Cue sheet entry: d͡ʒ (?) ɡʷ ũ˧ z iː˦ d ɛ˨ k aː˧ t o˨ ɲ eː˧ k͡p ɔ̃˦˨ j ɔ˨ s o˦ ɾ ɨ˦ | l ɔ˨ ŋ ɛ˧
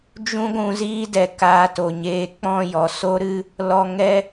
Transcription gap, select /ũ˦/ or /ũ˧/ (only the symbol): ũ˦